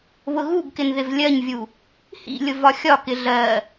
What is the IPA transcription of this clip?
β ʊ ɣ u ɡ k ɪ n ð ɪ v lʲ ɜ ɲ vʲ u | h ḭ lʲ ʊ v ɒ xʲ ɒ k ɪ ɮ ɜ

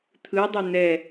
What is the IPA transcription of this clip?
t̪ʰ ɯ dˤ ʏ n̪ ɛ

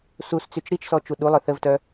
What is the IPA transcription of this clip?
s u s t͡s y t͡ʃ ɾ i t͡ʃ s ɔ t͡ʃ u ɗ u lˠ œ θ ə v t œ

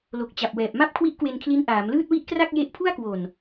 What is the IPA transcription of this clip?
l o˨˩ k̚ t͡ɕ a˨˩ p̚ w ɛː˨˩ p̚ m a˥˩ p̚ kʰ w i˦˥ ʔ k w e˧ n kʰ l i˦˥ n ʔ aː˩˦ m l ɯː˥˩ t̚ w i˥˩ ʔ k r a˥˩ k̚ j e˦˥ ʔ pʰ u˥˩ a̯ k w o˨˩ n

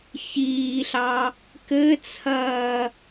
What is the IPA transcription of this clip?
ç iː ɬ ɑ | k ɘ t͡sʰ ɐː

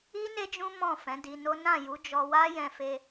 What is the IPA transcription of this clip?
i˦ n e˦ d͡ʒ ũ˦ m ɔ̃˦˨ f ɛ̃˨˦ d i˧ n o˦ n ã˦˨ j u˨˦ d͡ʒ ɔ˧ w a˦ j ɛ̃˧ f e˧

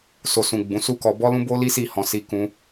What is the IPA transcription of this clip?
s o˨ s ũ˨ ɡ͡b ũ˨˦ s u˦ k ɔ˧ b ɔ˧ l ũ˧ b o˧ l i˦ s i˦˨ h ɔ̃˧ s i˧ k ũ˧

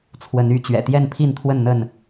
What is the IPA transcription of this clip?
t͡sʰ w ə˨˦ n y˨˦ t͡ɕ ɥ ɛ̰˨˩ t̪ j ɛ˥˨ n pʰ i˥˨ n t̪ʰ w ə˥˨ n n̪ ə˥˨ n

